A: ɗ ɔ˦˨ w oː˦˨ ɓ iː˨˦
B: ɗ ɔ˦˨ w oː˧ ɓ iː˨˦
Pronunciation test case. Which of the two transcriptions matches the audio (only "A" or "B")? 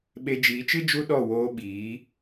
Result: B